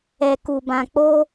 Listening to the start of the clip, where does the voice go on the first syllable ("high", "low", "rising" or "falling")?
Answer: low